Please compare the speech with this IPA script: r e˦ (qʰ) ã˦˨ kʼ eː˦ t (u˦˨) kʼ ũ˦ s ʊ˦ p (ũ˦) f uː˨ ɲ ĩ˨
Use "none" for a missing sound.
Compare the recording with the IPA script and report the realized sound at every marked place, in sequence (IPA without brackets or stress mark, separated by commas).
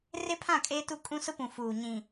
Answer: pʰ, u˦˨, ũ˨